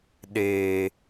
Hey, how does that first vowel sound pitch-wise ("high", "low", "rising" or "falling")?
low